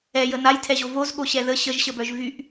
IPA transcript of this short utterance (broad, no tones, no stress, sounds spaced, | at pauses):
ɛ j ə n a j tʰ ɛ ʑ o v o z ɠ o ɕ ɛ ð ə ɕ ə ʒ ɕ ə b œ ʒ v y ʔ